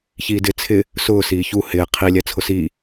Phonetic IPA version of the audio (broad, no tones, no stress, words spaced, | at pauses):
çiːdɪ t͡sʰɪ | sʊː siːçu hɪː qʰi lʲɛt͡sʰʊsiː